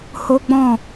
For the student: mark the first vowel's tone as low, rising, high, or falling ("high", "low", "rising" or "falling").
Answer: high